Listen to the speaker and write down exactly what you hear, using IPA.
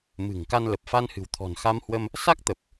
m ɨ̤˨˩ ŋ k a˧ n l ə˨˩ p̚ f a˧ n h ɨ̤˨˩ w t̪ʰ ɔ̤˨˩ n x a˧ m h w ə˧ m | s a˦˥ k̚ t̪ ə˨˩ p̚

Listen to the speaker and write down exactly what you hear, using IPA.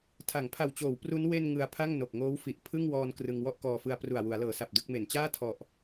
tʰ a˩˦ ŋ pʰ a˨˩ w t͡ɕ oː˩˦ w p r u˦˥ n w e˧ n ŋ ɯ˧ a̯ pʰ a˥˩ ŋ n o˨˩ k̚ ŋ oː˦˥ w f i˨˩ ʔ pʰ ɯ˥˩ ŋ w ɔː˧ n k r ɯ˧ ŋ w ɔ˥˩ ʔ k ɔː˧ f ɯ˧ a̯ p r u˨˩ a̯ w u˩˦ a̯ l ɤː˩˦ s a˨˩ p̚ d ɯ˥˩ k̚ m e˨˩ n t͡ɕ aː˥˩ tʰ ɔ˨˩ ʔ

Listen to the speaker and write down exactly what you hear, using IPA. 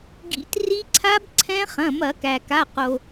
ɡ ḭ˧˩˧ t r i˦˥ ǀʰ a˦˥ b ǀʰ ɛ̃˦˥ χ ɐ̃˩˧˩ m ɐ˧˩˧ k æ˩ k a˩˧˩ q o˩

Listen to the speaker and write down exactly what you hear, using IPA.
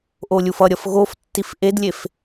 ʔ o lʲ u f ʌ ɾʲ ʌ f ɣ o f tː i f ʔ e d lʲ e f

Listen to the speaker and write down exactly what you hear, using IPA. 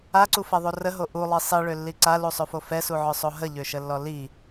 a ǀ u f ɛ ðˤ o r ə ɦ o ʔ u lˠ i sˤ i ɭ ø lː i ǀ a l u sˤ ø f o f ɛ s u ʕ œ sˤ o ɦ ə ʎ ø ʃ ə lː ɔ l i

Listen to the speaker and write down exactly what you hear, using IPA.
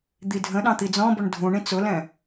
d̪ i dʱ ə̃ ɗ ɑ̃ t̪ i d͡z ɔ̃ b ʊ ɳ dʱ ũ ɳ ĩ t͡s ʊ l ɛ̃

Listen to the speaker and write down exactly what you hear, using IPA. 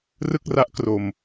r ɯ˥˩ k̚ r a˦˥ ʔ k r o˧ m

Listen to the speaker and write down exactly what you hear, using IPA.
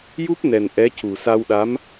j u˦˥ p̚ n ɛ˨˩ n ʔ ɛ˧˥ c u˨˩ s a˧ w ɗ a˧˥ m

